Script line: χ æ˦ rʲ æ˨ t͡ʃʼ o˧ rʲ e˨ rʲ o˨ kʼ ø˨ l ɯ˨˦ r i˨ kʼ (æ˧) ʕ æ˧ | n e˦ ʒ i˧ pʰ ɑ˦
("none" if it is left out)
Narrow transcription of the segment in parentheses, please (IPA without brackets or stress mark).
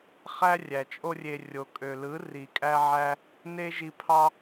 æ˧